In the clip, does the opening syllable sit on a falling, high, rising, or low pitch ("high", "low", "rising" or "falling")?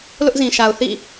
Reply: high